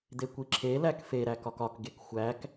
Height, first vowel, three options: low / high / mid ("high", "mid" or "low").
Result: mid